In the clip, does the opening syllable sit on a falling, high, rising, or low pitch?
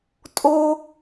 high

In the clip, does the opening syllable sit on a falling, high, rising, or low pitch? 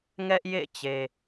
high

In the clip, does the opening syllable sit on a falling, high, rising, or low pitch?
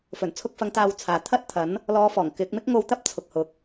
low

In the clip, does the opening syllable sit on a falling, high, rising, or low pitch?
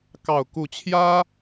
low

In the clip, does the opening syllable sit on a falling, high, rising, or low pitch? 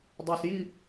low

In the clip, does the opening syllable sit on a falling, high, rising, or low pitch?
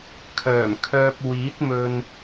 low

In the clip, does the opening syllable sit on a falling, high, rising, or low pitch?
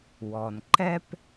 low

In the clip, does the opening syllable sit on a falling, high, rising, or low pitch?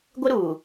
high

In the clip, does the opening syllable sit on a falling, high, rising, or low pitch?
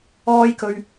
high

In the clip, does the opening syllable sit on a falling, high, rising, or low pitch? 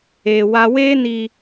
low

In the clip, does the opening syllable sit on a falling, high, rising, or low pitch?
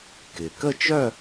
low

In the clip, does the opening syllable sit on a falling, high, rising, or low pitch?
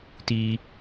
high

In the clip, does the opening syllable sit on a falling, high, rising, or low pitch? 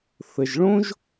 low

